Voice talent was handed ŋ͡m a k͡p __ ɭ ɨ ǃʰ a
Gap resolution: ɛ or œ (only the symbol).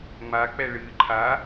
ɛ